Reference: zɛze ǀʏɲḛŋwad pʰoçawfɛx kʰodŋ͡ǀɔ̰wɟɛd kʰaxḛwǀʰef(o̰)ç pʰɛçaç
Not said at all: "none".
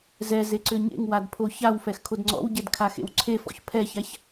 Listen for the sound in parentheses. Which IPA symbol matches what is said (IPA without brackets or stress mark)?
ɔ̰